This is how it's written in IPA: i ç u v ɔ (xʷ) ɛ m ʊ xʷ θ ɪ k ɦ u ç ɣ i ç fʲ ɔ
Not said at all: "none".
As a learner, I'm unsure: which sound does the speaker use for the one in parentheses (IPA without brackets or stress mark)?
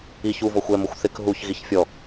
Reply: xʷ